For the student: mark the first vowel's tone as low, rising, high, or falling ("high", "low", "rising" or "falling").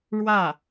falling